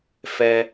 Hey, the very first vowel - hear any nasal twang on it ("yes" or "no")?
no